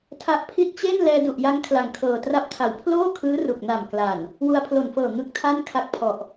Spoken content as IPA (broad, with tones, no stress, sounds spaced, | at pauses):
tʰ a˦˥ ʔ pʰ i˥˩ t̚ t͡ɕ e˥˩ n l ɛː˧ d u˨˩ ʔ j a˦˥ ŋ kʰ l a˨˩ ŋ kʰ ɤː˨˩ t r a˥˩ p̚ tʰ a˨˩ w pʰ l oː˥˩ kʰ ɯː˦˥ r u˨˩ k̚ n a˨˩ m k l a˨˩ n | w u˧ a̯ pʰ l o˨˩ n f ɤː˨˩ ŋ ɯ˦˥ k̚ tʰ a˥˩ n kʰ a˦˥ k̚ pʰ ɔ˨˩ ʔ